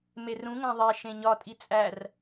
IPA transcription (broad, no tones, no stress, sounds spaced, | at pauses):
m e r ũ ŋ æ̃ ðˤ e ʃ ẽ ɲ ɒ tʼ i t͡sʼ æ r